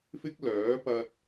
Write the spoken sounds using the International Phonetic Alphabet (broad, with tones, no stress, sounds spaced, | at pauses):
f ɪ˥ k̚ l œː˨˥ p ɐ˧ t̚